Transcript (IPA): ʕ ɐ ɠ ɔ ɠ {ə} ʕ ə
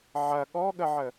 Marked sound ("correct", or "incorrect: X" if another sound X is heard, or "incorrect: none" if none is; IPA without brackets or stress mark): correct